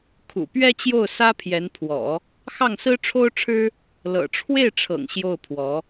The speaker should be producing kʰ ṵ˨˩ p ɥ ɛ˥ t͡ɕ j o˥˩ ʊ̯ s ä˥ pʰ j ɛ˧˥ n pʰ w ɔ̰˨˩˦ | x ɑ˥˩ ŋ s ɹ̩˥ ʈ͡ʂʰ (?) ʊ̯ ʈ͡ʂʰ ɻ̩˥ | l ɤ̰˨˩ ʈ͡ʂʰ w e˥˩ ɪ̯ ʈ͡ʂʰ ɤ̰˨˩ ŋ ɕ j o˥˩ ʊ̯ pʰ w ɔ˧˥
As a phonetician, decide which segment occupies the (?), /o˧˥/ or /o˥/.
o˥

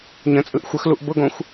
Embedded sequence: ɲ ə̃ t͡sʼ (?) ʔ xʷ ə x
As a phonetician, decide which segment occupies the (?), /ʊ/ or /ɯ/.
ɯ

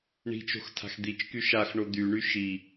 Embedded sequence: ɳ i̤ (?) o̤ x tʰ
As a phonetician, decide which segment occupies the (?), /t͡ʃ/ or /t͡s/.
t͡ʃ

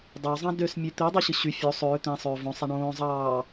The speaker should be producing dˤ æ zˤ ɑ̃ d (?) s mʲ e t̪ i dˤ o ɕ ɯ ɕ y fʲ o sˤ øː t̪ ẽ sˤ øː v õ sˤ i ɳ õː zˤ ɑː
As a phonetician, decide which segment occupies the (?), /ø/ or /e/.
ø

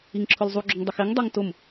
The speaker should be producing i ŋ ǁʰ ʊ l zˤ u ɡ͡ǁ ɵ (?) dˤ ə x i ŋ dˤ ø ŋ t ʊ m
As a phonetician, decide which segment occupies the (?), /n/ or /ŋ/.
ŋ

